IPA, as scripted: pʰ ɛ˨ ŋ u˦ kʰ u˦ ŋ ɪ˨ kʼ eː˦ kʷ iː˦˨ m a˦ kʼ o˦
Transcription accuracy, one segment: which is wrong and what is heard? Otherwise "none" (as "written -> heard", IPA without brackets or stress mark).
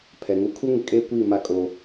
none